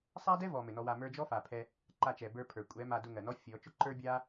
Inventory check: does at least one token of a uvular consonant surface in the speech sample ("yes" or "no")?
no